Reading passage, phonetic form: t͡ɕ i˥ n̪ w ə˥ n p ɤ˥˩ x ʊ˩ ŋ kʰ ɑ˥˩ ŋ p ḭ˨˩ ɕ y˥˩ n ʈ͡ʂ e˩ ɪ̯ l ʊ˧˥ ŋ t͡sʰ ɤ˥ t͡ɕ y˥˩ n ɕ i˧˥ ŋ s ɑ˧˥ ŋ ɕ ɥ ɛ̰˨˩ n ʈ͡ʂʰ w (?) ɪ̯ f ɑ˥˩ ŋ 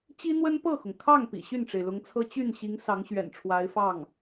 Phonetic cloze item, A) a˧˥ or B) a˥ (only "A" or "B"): A